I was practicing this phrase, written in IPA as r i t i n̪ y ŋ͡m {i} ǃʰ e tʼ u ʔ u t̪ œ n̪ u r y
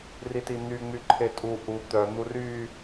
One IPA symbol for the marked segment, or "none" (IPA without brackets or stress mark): y